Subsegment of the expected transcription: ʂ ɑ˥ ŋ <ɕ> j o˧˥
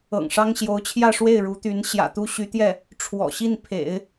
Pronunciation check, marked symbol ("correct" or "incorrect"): correct